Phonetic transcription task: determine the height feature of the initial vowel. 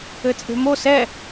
mid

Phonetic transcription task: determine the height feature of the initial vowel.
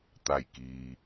low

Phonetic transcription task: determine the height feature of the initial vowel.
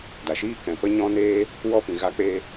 low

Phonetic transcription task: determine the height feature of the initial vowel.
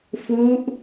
high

